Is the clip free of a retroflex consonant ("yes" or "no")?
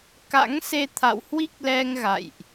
yes